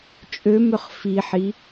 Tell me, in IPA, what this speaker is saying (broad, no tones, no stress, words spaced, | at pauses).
t͡ʃʼømʏχ fiħi